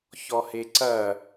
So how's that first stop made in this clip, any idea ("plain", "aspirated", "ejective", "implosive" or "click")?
click